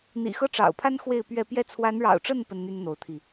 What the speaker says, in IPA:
n̪ ḭ˨˩ x ɤ˥˩ ʈ͡ʂ ɑ̰˨˩ ʊ̯ pʰ a˥ n x w e˥˧ ɪ̯ p ɥ ɛ˥˧ p j ɛ˥˩ t͡sʰ w a˧˥ n ɻ ɑ̰˨˩ ʊ̯ ʈ͡ʂ ə˥˩ n p ə˥ n n̪ y˥ n n̪ o˧˥ ʊ̯ t̪ʰ i˧

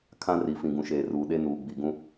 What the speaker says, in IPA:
kʰ ã˦ r i˨ f ĩ˨ ɡ ũ˨ ʃ eː˨ r uː˨ ɗ e˦ n uː˨ ɡ͡b i˨ ɡ ũ˦

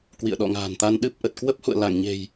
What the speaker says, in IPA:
k w ḭ˧˨ ə̯ ɗ ɔ̰˧˨ ŋ a̤ː˨˩ n t̪ a˧ n ɗ ɨ˦˥ p̚ ʔ ə˨˩ t̚ k w ə˦˥ p̚ h ṵ˧˨ ə̯ l a˧˩ ŋ ɲ e̤˨˩ j

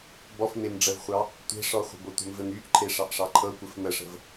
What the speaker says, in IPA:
b ɔ f m e m ɖ͡ʐ ə v χʷ ɑ | tʷ e̤ ʂ ɔ χʷ ə̤ b o tʷ ə̤ m v ɘ m y ʔ ǃʰ e ʂ ɑ ʔ ʂ ɑ ǃʰ ɤ kʷ ɘ f m ə ʂ ə̤ v

